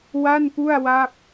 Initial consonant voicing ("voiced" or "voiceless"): voiced